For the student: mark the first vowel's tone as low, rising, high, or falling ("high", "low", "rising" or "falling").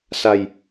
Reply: low